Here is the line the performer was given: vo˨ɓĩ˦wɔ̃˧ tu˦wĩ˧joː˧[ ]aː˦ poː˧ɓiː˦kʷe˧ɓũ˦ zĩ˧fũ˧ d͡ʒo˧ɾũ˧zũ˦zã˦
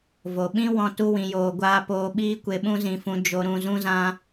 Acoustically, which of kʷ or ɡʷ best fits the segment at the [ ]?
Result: ɡʷ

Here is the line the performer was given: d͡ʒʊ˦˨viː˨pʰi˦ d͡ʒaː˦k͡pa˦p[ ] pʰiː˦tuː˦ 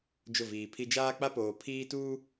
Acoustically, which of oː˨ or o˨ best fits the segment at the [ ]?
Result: oː˨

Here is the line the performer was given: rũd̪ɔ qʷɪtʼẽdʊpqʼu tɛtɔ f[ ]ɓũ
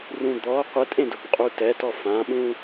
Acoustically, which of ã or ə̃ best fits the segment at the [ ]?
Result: ã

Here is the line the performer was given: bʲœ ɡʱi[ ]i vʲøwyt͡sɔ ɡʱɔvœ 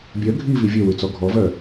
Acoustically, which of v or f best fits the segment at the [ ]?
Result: v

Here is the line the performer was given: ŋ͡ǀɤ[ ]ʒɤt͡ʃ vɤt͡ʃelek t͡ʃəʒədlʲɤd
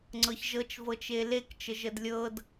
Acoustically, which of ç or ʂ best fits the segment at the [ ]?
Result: ç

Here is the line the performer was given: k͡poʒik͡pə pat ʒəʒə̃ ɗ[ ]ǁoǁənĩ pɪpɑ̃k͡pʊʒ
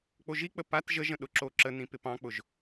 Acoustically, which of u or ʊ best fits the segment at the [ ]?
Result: ʊ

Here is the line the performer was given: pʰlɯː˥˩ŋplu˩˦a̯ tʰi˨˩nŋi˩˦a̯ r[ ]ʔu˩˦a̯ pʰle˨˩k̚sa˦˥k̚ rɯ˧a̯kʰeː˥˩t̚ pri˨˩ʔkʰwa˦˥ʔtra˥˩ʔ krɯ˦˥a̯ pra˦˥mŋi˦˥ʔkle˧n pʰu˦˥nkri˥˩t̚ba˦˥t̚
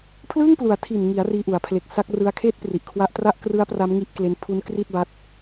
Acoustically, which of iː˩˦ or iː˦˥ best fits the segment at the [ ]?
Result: iː˦˥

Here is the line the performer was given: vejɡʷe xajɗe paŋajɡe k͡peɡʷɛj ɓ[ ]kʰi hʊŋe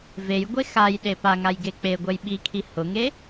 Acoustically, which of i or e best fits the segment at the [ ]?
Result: i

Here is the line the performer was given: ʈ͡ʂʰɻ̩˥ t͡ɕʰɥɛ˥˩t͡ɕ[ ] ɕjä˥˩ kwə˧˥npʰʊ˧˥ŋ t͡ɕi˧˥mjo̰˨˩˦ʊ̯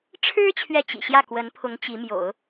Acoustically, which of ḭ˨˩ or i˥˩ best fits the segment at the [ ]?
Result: ḭ˨˩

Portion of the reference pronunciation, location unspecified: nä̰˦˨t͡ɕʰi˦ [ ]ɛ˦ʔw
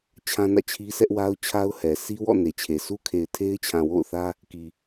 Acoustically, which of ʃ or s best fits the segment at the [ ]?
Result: s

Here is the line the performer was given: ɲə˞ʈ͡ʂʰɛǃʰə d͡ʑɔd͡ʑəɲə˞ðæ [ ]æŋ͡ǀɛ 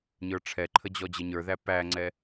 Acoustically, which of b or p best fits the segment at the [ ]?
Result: p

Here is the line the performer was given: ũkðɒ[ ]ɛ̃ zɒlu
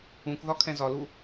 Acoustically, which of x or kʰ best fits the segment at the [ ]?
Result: kʰ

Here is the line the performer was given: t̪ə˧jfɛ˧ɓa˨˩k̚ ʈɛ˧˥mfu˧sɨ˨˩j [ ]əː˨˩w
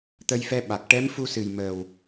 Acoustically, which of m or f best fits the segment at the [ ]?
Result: m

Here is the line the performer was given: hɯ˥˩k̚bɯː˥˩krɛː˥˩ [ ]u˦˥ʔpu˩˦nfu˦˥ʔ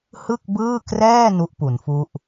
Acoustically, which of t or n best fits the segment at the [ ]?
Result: n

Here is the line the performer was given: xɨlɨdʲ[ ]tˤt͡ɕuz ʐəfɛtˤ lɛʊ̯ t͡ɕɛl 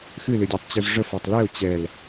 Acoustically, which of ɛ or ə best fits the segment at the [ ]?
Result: ɛ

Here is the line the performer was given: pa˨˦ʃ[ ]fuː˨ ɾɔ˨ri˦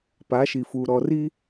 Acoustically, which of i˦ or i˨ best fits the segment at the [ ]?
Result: i˨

